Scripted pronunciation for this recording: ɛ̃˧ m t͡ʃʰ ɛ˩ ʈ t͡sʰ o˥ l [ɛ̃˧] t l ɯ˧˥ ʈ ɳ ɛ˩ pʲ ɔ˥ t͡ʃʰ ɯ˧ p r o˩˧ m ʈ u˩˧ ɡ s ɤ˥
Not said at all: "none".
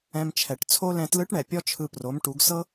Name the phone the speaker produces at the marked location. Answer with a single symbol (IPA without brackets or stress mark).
ɛ̃˧